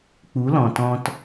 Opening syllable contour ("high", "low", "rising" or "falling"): rising